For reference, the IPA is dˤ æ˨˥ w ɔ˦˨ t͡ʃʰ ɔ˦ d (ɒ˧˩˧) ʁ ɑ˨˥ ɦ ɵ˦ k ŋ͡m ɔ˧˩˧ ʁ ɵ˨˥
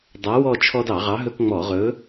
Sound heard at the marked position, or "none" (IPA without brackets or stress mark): ɑ˧˩˧